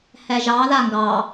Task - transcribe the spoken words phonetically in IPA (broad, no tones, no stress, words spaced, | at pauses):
hɛʒɑ ðaŋɡɑ